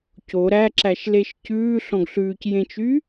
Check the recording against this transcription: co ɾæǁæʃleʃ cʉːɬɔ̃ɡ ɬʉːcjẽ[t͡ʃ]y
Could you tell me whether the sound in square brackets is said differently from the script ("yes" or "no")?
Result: no